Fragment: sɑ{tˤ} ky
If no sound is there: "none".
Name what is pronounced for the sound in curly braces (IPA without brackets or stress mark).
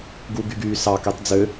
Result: none